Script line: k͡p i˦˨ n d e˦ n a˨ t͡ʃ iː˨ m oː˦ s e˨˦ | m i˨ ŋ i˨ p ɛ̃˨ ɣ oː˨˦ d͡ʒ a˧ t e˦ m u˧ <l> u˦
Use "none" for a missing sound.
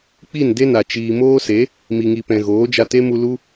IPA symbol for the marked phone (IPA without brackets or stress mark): l